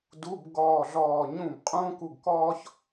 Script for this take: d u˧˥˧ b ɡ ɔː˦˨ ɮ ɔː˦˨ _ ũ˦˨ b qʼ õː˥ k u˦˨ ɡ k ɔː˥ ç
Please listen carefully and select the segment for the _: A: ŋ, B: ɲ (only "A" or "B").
B